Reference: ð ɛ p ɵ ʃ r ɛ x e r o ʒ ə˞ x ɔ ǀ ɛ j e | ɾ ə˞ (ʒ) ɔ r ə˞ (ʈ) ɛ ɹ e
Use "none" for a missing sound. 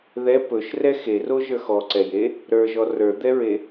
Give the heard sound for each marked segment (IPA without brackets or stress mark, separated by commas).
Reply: ʒ, d̪